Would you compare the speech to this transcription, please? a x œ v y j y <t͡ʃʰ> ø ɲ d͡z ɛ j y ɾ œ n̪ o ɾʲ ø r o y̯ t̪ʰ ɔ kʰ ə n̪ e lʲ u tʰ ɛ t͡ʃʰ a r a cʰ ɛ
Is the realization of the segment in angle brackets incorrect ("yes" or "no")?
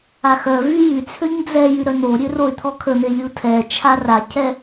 yes